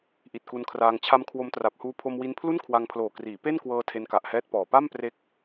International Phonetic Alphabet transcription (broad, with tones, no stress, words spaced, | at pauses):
ʔi˨˩t̚ku˧nkʰraː˧ŋ t͡ɕʰa˦˥mkʰwo˦˥mtra˨˩p̚ huː˧ pʰo˧mwi˧npʰlu˥˩n kʰwa˧ŋpʰloː˨˩kriː˩˦ pe˥˩nkwɤː˧ tʰe˧nka˨˩ʔhɛː˦˥t̚ pɔː˨˩ pa˥˩mpre˦˥k̚